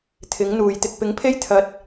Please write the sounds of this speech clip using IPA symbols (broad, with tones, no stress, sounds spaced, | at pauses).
t̪ʰ ɪ˨˥ ŋ n̪ uː˨˩ j t̪ ɪ˨ k̚ p ɪ˨˥ ŋ pʰ e˥ j t̪ʰ ɐ˨ t̚